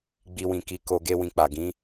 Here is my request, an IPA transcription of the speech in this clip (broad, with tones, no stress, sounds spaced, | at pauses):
ɡ͡b i˧ w ĩ˨ k i˨˦ k o˧ ɡ e˦ w ĩ˧ k͡p a˨ ɡ ĩ˨˦